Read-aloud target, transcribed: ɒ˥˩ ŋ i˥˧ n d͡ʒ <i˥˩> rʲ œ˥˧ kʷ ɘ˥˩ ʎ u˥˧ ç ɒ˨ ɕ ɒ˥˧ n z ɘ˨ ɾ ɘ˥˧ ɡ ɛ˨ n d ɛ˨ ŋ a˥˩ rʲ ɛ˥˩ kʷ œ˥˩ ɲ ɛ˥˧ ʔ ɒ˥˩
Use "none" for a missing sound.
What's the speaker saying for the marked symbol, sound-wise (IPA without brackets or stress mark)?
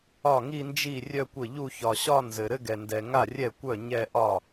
i˥˩